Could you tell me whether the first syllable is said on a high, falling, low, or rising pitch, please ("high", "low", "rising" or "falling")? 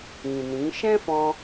low